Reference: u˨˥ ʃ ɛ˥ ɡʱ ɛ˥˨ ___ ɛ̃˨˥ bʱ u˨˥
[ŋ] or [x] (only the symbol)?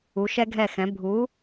x